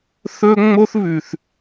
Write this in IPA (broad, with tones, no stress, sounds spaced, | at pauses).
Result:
θ ɵ˦ ŋ͡m o˦ θ β ʉ˨ θ